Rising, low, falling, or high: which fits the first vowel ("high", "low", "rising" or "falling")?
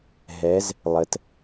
rising